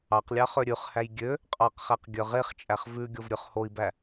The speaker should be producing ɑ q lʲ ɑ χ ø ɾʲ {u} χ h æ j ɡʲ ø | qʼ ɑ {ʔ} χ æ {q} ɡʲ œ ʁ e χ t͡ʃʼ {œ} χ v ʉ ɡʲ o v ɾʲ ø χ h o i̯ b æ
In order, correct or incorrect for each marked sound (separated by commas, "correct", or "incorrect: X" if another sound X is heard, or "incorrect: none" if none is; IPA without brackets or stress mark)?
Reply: incorrect: ʉ, incorrect: q, correct, incorrect: æ